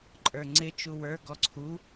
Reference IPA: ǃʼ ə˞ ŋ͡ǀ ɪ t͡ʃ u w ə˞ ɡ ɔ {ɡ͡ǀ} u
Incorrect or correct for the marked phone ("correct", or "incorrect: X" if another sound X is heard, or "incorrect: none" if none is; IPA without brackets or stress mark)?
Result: incorrect: ǀʰ